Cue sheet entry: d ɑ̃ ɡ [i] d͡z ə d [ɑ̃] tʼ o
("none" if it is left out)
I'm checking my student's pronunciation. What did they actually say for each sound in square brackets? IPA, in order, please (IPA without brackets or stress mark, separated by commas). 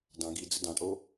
i, ɑ̃